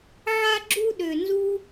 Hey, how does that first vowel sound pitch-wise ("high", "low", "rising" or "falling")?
high